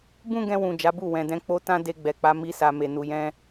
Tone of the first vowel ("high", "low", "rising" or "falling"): high